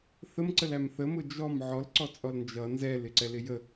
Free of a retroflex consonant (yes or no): yes